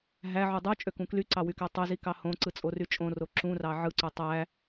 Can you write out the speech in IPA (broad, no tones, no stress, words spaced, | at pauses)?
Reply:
ɦæʕu dˤu t͡ʃʼøkũklyǀɑ wykætˤyzi kɑhõǀɯ t͡sʼoryt͡ʃʼõro ǁũrɑ ʕɯǀo tˤæ